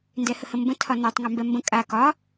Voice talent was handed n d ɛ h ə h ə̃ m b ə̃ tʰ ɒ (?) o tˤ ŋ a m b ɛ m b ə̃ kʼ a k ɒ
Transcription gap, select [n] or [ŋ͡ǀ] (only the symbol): n